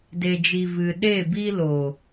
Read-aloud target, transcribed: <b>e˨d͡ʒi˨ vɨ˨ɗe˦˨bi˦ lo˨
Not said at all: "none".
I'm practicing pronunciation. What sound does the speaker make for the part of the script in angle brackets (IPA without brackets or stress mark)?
d